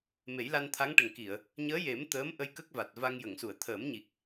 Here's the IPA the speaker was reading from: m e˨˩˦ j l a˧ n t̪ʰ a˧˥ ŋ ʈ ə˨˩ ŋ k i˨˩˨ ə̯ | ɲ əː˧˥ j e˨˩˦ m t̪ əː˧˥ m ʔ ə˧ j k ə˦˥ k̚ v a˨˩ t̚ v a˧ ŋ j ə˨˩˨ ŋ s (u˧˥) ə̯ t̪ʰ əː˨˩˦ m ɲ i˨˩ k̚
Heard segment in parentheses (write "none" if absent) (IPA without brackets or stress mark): u˨˩˨